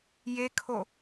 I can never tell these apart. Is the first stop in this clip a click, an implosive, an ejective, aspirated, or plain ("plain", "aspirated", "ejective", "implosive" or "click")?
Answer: aspirated